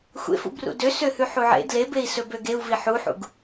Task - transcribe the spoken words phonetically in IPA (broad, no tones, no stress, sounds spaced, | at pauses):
xʷ ḛ f ṵ b r ṵ d ø s ø h ʉ ħ u ʕ ḛ d l e b e i̯ s ɵ b ø ɡ e u̯ v i ħ u ħ ṵ ɡ